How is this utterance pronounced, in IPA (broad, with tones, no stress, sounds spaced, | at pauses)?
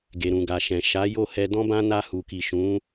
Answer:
ɡ e˨ ɾ ũ˨ ɡ a˨ ʃ ɛ̃˨ ʃ a˨˦ j o˦˨ h ɛ˧ d ɔ̃˦ b ã˦ n a˧ h u˨ k i˨ ʃ ũ˨˦